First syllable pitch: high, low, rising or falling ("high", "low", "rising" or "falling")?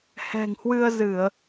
low